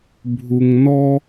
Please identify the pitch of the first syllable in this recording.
low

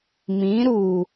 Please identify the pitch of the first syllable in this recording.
rising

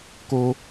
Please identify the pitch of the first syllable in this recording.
high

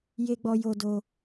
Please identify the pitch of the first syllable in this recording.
high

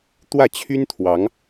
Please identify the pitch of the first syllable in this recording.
falling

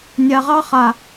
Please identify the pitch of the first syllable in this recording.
low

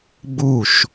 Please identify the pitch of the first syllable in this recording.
falling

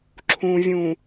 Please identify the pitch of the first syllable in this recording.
low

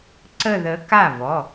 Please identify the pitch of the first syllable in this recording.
falling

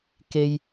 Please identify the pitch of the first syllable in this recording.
high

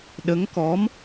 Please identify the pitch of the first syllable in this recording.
rising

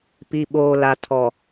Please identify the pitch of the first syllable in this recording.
low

